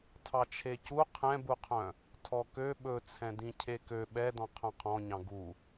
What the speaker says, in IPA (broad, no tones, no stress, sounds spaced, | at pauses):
tʰ ɑ t͡ʃʰ e c u qʰ ɛ̃ b u qʰ œ̃ | tʰ ɔ k ø ɓ ɵ t͡sʰ ɛ̃ d ĩ cʰ e k ø ɓ ɛ d ɔ̃ qʰ œ̃ qʰ ɔ̃ ɲ ɑ̃ ɡ u